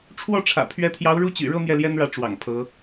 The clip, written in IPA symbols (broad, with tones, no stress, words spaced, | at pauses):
ʈ͡ʂʰwɔ˥˩ʈ͡ʂʰä̰˨˩ pʰɥɛ˧˥t̪ʰjɑ˧˥ʊ̯ ɻu˥˩t͡ɕy̰˨˩ɻɤ˥˧ n̪jɛ˥˩ljɛ˥nɻä˧˥ ʈ͡ʂwɑ̰˨˩ŋpʰɤ˧˥